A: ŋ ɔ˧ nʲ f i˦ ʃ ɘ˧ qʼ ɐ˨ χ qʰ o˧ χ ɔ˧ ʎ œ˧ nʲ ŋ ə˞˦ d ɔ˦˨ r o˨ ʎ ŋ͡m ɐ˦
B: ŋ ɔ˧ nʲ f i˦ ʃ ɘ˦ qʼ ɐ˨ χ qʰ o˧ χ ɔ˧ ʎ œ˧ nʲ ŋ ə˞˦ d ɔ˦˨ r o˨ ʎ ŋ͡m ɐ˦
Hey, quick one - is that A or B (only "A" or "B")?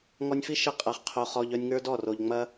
A